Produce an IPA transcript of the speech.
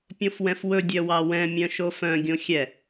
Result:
pʲ õ f w ɛ̃ f w ɵ dʲ œ w ɑ w ɛ̃ mʲ œ̃ ʃ o f œ̃ ɡʲ õ xʲ ɛ

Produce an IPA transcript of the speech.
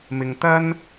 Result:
m ɪ˨ ŋ t̪ ɐ˥ n

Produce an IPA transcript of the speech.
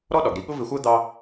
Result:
ɾ ɔ˥ ɗ ɒ˩ ɡ ɾ i˧ ɠ ʊ˥ v ɪ˧ xʷ ɜ˥ d̪ ɑ˥

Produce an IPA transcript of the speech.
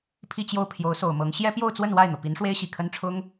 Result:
pʰ i˥˧ t͡ɕ j o˥˩ ʊ̯ pʰ j o˧˥ ʊ̯ s o˨˩ ʊ̯ m ɤ˧˥ ŋ ɕ j ɛ˥ p j o˥˧ ʊ̯ t͡s w ə˥˧ n w a˥˩ ɪ̯ n̪ ɤ˩ p i˧˥ n ʂ w e˥ ɪ̯ ɕ i˨˩ kʰ ə˥ n ʈ͡ʂʰ ʊ˥ ŋ

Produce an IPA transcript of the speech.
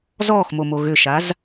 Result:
z ɔː x m o m o ɣ ʏ ʃ a z

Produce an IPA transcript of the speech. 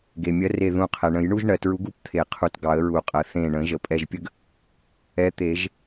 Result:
ɡ e˩ mʲ ɜ˨˥ r e˧˩ ð ũ˧˩ qʰ ɛ˩ ɳ ə̃˨˩˦ j ɳ u˥ ʒ ɳ ɜ˩ t ɹ u˨˥ ɡ u˥ p t̪ʰ e˨˩˦ qʰ u˧˩ t ɡ ɑ˨˩˦ ə̯ ɹ u˨˩˦ qʼ ɜ˩ θ ẽ˧˩ ɳ ə̃˨˩˦ ʒ ə˩ pʼ ɛ˧˩ ʒ pʲ ə˥ ɡ | ɛ˨˥ t̪ e˨˩˦ ʒ

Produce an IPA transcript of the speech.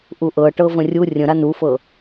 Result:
ʔ u ʔ ɤ ʈ ɤ v ə̃ rʲ u rʲ ə̃ ɾ a n u f ɤ

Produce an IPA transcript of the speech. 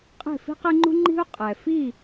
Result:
qʼ e̤˥˩ f i̤˥ q e˥ ŋ͡ǃ ṳ˥ ŋ͡ǃ i̤˥ u̯ qʼ ɛ˩ f i˥˩

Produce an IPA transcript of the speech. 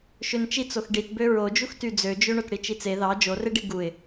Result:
ʃ ø n t͡ʃ i t͡s o x ɖ i t b ø ɹ o d͡ʒ u x t y d͡z ø d͡ʒ ø ɳ o t ɽ i t͡ʃ i t͡s e ð ɑ d͡ʒ o r e ɖ i ɡ u ɪ̯

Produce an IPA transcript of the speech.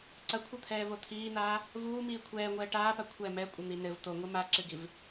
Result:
ǀ ɐ kʷʰ ɐ t̪ʰ ɛː v o t̪ʰ iː n̪ aː | v uː m iː kʷʰ ɛː ŋʷ ɛː ʈ aː p a kʷʰ ɛ m ɛ kʷʼ ɘ n̪ i n ɘ v t̪ o ŋʷ ɨ m a ǁ ɨ ɡ i v

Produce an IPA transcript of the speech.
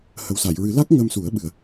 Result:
h ə˨˩ w s a˨˩˨ j ɹ ɨ˨˩˦ l a˦˥ k̚ ŋ ə˧ m s u˨˩˦ ə̯ ɓ ɨ˨˩ ə̯

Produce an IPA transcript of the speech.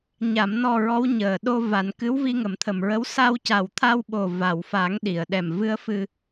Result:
ɲ a˨˩˨ m n ɔ˨˩ ɹ ɔ˧˥ w ɲ əː˨˩ ɗ o˧ v a˨˩ n k ɨ˧˥ w v i˧ ŋ ə˨˩˦ m t̪ʰ ə˨˩ m ɹ ə˧˥ w s a˧ w c a˨˩ w t̪ʰ a˧ w ɓ o˨˩ v a˨˩˨ w f a˨˩˦ ŋ ɗ i˨˩˨ ə̯ ɗ ɛ˨˩ m v ɨ˧˥ ə̯ f ɨ˧

